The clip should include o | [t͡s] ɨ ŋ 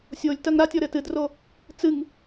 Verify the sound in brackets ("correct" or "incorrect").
correct